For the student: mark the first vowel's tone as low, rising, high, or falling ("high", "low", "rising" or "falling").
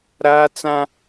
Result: high